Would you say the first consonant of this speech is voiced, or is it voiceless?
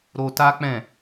voiced